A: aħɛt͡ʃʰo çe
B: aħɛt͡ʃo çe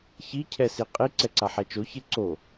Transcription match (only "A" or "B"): B